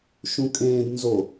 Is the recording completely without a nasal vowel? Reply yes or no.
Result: no